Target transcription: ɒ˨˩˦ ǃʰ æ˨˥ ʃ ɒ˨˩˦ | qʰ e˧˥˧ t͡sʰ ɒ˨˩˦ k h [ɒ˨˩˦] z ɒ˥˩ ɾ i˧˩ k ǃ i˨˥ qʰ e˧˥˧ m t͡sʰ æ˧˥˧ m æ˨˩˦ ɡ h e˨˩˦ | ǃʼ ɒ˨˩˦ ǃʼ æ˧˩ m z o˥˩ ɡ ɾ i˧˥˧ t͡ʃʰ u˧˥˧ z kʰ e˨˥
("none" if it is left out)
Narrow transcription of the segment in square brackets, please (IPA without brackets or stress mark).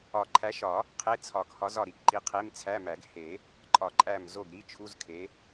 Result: ɒ˨˥